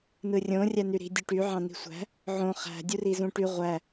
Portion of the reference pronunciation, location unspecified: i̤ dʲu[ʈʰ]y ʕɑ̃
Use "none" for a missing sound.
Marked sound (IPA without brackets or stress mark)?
ʈ